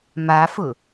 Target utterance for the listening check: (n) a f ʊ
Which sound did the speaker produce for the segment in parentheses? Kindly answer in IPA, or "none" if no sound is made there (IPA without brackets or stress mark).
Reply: m